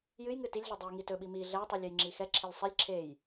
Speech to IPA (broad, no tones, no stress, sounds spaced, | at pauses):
j ɨ j ŋ ɨ t i lʲ ɮ ɨ dˤ ɛ j ŋ i t ɵ ɓ i m i ɮ ɛ tˤ i lʲ ɛ j ŋ͡ǁ i x ɛ ǁʰ e lʲ sˤ i lʲ ǁʰ e j